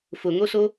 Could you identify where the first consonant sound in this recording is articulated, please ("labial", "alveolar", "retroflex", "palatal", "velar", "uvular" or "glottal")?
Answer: labial